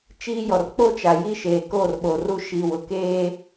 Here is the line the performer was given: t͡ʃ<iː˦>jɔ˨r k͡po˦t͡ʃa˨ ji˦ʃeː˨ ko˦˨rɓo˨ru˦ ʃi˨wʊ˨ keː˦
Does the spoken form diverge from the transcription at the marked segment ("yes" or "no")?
no